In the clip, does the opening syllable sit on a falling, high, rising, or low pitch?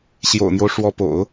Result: low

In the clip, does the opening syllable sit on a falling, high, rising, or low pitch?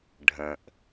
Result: low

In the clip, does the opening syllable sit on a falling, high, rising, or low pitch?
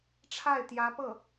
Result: falling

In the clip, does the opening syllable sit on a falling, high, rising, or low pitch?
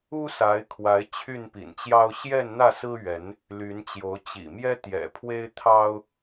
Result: high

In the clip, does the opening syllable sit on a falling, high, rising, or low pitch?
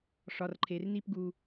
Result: low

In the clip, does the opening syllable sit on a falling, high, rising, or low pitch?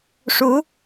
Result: rising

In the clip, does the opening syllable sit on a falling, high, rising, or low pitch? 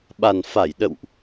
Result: low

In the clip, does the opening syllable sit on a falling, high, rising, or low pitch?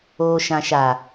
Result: low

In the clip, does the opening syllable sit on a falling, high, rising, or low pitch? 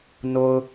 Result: low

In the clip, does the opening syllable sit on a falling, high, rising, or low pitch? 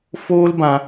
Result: high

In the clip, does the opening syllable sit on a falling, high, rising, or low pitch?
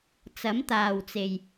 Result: rising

